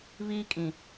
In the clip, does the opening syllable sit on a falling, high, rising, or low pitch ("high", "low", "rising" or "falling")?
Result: high